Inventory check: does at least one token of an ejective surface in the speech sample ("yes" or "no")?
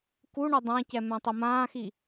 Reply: no